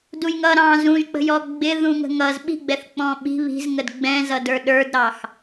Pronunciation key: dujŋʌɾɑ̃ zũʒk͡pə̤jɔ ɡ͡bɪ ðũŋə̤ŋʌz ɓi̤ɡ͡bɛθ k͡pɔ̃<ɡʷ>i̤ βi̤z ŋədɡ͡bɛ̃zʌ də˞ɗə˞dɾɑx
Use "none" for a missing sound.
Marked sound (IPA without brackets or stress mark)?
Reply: ɓ